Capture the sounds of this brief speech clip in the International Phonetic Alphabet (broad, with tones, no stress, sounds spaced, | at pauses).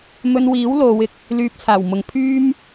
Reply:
m ɵ˧ n w iː˨˥ w l o˨˧ w ɪ˨ k̚ | l yː˨ p̚ t͡sʰ aː˨˩ w m ʊ˨ ŋ pʰ yː˥ m